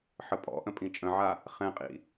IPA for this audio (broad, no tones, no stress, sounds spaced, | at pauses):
ħ ə pʼ ɔ̰ ʔ ə̃ pʼ ĩ t͡ʃʼ ə̃ ʕ a | χ ɛ̃ qʼ ḭ